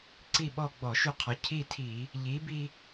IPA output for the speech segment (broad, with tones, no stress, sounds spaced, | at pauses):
ǀ i˦˨ ɓ ɔ˦˨ ɡ͡b ɔ˧˩˧ ʃ y˦˨ qʰ ɔ˨˥ cʰ i˦˨ tʰ i˧˩˧ | ʎ i˨˥ b i˦